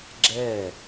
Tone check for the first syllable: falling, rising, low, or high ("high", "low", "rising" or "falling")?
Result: falling